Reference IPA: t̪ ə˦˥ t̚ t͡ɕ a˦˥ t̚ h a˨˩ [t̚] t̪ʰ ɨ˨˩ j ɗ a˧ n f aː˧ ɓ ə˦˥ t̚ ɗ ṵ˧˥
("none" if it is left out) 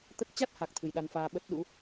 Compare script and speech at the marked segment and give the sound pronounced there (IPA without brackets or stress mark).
k̚